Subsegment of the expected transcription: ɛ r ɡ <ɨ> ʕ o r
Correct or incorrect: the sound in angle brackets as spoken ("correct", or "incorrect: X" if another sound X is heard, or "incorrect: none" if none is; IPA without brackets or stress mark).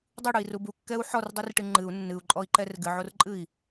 correct